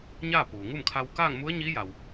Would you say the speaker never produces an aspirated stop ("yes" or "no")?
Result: no